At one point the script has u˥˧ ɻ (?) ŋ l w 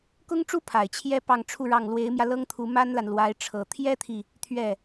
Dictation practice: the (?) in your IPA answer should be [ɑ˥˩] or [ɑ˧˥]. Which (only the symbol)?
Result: ɑ˥˩